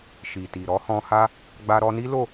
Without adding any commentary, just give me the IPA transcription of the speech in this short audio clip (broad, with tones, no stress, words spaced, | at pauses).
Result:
ʃi˨ti˨ ɾɔ˨˦hɔ̃˧ha˦ | ɡ͡ba˧ɾɔ˧ni˦ lo˦˨